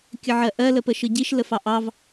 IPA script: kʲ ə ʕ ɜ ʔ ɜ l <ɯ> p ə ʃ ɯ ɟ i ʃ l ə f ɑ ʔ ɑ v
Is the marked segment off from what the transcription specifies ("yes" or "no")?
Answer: yes